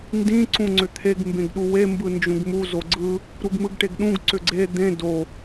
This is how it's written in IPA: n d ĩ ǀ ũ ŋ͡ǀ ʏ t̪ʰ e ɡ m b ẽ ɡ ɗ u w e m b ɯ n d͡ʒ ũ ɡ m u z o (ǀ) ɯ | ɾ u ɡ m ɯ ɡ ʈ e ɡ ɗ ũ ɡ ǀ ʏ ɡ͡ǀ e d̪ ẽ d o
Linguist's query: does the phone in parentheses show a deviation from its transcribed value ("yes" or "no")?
yes